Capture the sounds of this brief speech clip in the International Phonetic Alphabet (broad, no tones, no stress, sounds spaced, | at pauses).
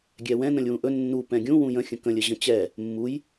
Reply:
ɡʲ ɛ w ɛ̃ n ə̃ lʲ w ũ ʔ ɵ nː u p ɛ̃ ɡʲ ũ w ũ j ə̃ xʲ ə̃ k ə̃ lʲ ə ʑ ə̃ t͡ɕ ɛ | mː u j